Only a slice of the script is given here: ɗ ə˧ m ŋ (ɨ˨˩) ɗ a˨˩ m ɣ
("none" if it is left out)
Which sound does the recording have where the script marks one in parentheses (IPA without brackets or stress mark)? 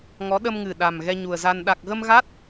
ɨ˨˩